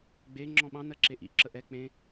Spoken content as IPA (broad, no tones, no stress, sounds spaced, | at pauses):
ɡ͡b e ŋ͡ǁ ɔ̃ ɓ ɑ̃ n ɜ ǁ e ʔ ḭ ǁ ə ʔ ɛ k͡p ẽ